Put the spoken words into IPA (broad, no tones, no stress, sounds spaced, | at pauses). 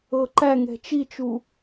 ɤ ǃ æ ŋ ɛ̤ t͡ʃ i t͡ʃ u